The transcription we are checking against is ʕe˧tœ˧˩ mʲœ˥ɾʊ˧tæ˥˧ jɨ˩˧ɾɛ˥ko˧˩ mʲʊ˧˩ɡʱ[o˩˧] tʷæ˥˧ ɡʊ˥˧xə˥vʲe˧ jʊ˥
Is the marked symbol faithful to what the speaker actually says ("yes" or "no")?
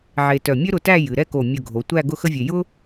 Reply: yes